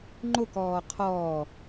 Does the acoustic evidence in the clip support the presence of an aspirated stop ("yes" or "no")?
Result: yes